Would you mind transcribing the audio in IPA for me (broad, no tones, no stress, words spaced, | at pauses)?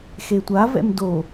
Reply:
xetʷa vɛ̰mdo